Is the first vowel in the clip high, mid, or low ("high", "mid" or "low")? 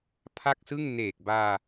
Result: low